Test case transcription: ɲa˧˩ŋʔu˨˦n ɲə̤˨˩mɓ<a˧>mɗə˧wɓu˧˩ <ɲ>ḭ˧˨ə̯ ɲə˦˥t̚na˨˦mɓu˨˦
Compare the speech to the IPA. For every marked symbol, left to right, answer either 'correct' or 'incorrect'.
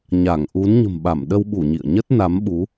incorrect, correct

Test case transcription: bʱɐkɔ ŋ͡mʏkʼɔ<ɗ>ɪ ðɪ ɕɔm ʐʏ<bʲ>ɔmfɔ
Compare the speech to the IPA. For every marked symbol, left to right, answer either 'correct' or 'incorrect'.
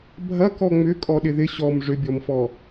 correct, correct

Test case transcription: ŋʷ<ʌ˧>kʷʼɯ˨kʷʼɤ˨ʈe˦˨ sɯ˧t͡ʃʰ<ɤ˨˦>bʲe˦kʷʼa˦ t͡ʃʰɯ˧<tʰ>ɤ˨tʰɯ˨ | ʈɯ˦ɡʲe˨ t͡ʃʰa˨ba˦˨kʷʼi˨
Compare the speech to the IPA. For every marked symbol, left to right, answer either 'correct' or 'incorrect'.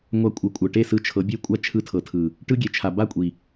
incorrect, correct, correct

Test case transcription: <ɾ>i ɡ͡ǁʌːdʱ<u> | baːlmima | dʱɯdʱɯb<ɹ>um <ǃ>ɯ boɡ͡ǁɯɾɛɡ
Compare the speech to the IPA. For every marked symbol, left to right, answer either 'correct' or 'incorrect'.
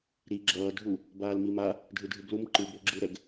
correct, correct, incorrect, correct

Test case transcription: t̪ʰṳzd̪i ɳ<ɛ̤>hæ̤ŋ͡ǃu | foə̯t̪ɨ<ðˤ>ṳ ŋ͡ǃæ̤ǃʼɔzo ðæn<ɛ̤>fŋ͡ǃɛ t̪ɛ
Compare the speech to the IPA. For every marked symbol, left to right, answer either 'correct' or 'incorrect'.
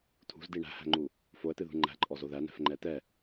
incorrect, incorrect, correct

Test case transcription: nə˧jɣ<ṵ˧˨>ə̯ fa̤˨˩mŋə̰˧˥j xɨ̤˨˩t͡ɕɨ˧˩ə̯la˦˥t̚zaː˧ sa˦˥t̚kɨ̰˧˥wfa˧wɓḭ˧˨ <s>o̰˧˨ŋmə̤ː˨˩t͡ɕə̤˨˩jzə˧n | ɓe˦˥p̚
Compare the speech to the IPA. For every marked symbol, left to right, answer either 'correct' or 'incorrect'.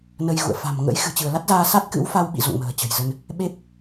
correct, incorrect

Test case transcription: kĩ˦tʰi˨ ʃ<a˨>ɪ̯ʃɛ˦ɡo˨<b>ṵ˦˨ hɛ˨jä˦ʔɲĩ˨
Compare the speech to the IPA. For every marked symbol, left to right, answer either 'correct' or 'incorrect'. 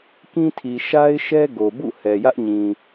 incorrect, correct

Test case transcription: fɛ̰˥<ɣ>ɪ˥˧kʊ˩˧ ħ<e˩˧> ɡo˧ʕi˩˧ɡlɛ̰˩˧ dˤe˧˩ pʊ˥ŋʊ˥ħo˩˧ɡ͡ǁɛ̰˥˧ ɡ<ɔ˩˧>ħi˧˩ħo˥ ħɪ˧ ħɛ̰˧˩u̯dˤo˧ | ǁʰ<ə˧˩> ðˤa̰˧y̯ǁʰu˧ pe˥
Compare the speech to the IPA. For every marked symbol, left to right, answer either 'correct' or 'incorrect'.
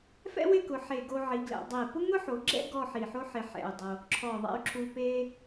incorrect, incorrect, incorrect, incorrect

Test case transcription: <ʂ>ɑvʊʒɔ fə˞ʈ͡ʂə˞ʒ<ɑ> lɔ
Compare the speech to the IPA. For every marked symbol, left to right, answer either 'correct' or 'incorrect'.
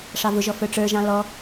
correct, incorrect

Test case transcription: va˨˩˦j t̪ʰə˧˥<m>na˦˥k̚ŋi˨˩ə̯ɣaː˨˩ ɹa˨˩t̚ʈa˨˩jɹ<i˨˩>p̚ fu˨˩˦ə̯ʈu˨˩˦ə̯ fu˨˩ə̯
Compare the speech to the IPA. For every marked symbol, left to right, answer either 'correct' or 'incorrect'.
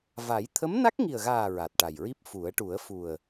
correct, incorrect

